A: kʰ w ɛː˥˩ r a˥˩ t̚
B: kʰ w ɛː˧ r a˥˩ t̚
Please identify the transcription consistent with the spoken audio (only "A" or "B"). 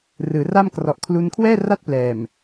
A